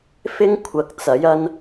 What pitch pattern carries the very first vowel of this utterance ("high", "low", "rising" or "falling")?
high